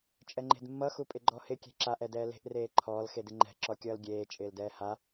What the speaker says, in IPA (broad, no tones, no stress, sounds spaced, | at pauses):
t͡ʃʼ ɛ ŋ͡ǃ e̤ d mː ʌ x u pʼ ɪ ɡ͡ǃ ɔ h ɪ kʲ e̤ ǁ a ʔ ɛ d ɛː l e̤ ʔ r eː ǃʰ ɔː l x e d ɪ ŋ͡ǃ ɛ̤ ǁ ɔ kʲ ʌː l ɡʲ eː t͡ʃʼ ɪː l d ɛː h a